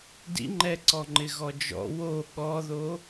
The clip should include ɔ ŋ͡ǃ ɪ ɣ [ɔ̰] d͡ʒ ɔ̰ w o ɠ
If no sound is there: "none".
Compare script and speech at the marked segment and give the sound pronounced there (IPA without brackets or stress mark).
ɔ